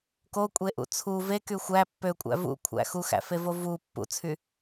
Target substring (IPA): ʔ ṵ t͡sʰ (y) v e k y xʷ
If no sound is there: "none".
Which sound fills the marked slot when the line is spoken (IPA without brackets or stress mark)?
u